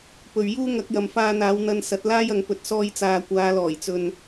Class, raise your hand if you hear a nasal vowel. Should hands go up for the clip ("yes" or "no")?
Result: no